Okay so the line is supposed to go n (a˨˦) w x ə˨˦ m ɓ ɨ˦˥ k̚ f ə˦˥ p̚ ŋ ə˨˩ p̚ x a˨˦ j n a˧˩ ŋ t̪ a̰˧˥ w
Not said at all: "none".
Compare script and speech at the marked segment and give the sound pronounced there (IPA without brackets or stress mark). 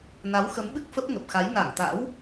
a˨˦